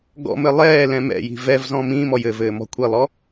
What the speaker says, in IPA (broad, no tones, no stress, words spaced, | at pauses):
ɡɔ̰mɘ lˠɛː lɛ̃mɛ̰ji̤ vɛvzɔ̃ mĩːmɔj ɘvɘː mɔ̤kʷʰilˠɔ